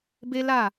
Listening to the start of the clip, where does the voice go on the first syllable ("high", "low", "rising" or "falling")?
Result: high